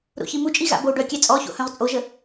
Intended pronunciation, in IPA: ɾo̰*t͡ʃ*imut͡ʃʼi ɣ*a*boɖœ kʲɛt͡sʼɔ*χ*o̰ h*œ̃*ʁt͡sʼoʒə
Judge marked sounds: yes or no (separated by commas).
no, no, no, yes